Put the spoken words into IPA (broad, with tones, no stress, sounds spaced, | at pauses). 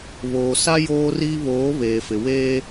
β oː˨ s a˦ j oː˦ r iː˦ β oː˨˦ β eː˨ f ɪ˨ w eː˦